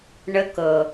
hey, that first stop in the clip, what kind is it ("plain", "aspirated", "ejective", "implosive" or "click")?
plain